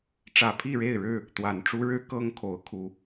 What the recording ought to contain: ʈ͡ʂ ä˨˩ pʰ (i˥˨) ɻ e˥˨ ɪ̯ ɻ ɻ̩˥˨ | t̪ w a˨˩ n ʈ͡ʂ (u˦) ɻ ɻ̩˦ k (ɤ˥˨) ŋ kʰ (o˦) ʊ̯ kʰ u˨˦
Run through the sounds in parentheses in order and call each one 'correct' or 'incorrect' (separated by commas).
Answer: correct, correct, incorrect, incorrect